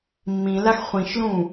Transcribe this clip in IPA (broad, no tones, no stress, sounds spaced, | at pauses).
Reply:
mː ĩ l a x χʷ ĩ ʃ l ũ